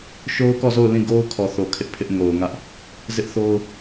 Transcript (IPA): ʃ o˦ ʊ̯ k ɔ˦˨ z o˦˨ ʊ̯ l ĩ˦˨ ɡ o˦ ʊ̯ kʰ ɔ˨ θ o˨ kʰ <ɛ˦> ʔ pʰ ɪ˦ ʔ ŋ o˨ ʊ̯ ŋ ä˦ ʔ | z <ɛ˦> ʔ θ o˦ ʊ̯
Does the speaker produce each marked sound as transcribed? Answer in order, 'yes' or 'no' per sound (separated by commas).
no, no